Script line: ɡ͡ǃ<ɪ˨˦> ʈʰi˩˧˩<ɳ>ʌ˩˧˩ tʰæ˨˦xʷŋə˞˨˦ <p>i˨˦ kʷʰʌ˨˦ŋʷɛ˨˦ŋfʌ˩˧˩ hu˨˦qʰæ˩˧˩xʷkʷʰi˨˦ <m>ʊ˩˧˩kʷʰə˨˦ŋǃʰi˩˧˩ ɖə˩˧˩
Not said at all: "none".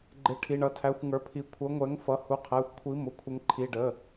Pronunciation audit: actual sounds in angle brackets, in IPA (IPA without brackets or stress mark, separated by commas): ɪ˨˦, ɳ, pʰ, m